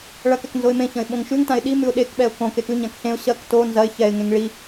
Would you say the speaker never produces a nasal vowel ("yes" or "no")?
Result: no